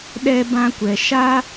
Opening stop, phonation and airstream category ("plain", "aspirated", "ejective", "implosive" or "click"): implosive